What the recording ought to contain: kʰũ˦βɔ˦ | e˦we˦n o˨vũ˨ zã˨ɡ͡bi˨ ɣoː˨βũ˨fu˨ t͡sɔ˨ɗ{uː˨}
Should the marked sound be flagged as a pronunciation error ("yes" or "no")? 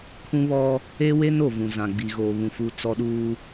no